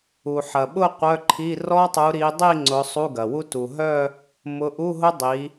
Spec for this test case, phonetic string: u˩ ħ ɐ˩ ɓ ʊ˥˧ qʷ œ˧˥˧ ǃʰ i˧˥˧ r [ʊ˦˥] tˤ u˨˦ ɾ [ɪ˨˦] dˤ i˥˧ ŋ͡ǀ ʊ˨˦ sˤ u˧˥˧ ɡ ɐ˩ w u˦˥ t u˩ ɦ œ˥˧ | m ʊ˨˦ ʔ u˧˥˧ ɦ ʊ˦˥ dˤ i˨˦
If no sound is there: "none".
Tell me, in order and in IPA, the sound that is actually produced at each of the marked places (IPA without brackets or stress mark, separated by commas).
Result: ɔ˦˥, i˨˦